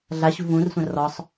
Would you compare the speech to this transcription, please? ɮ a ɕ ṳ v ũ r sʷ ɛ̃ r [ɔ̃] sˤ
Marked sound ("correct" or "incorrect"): incorrect